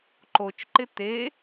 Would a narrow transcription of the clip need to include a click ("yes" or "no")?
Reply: yes